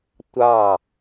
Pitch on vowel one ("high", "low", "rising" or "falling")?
falling